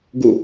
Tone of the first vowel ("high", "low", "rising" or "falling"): falling